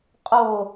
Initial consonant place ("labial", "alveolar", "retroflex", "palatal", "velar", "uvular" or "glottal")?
uvular